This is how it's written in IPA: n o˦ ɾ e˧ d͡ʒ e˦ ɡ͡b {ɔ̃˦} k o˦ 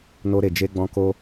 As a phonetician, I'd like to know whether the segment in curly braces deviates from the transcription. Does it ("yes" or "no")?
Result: no